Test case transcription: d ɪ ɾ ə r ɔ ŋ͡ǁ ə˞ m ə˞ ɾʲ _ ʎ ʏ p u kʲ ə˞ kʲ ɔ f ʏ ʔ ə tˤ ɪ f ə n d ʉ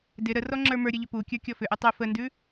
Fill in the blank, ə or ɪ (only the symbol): ə